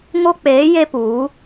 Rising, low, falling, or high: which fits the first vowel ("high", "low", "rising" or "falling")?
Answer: high